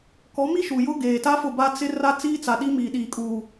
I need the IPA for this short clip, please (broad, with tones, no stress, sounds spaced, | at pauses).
k ɔ˨˦ m i˦ ʃ u˨ j ʊ˦ ɡ eː˨ t a˦ f ʊ˦˨ b a˦ t͡s ɪ˦ r a˦ t͡s iː˦ t͡s a˨ ɗ i˦ m iː˨ ɗ iː˨ kʼ uː˨